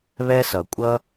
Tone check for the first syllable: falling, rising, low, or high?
high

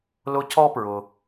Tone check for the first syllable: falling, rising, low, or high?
high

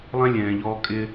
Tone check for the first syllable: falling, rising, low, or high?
high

